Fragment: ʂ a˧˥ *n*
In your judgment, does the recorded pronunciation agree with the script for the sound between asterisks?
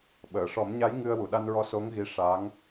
no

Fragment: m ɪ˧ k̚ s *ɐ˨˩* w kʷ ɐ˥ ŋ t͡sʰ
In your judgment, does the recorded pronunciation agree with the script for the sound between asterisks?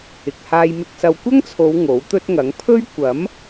no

